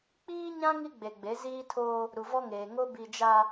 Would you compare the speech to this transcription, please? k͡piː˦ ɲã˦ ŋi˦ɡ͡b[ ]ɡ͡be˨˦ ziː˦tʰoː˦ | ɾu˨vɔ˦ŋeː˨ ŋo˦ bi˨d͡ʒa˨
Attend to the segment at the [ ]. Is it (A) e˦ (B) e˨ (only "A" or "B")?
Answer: B